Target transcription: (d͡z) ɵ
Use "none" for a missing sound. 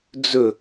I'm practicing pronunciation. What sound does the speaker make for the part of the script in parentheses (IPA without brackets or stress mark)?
d͡z